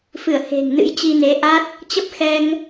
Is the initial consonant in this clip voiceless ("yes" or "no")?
yes